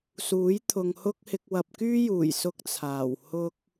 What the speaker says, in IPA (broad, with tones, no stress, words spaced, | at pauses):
suː˨˥j t̪ʰʊ˨ŋhʊ˥k̚hɪ˧k̚ wɐ˨p̚kyː˥juː˨˩j sʊ˥k̚t͡sʰaː˨˩w hʊ˥k̚